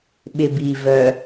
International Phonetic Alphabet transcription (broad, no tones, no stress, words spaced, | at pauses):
ɓɪbi vœ